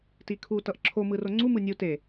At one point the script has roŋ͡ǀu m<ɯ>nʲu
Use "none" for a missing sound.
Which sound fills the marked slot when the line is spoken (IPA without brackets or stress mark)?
ɯ